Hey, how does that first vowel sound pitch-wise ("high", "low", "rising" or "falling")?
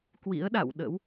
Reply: rising